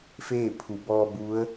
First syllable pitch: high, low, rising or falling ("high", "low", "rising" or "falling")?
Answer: falling